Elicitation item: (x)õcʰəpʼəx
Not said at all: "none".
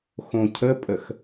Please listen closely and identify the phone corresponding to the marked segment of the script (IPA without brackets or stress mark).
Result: x